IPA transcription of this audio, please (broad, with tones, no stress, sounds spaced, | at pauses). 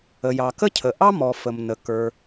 ə˩ j ɑ˩ k ə˥ cʰ ə˩ ʔ ɑ˥ m ɔ˩ f ə˩ m n ə˩ k ə˞˩